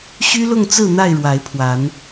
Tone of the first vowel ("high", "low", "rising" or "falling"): high